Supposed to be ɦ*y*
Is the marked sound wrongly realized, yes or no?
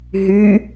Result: no